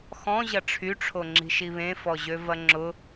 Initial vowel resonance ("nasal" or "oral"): nasal